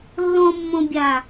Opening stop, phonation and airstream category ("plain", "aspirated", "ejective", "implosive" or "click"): plain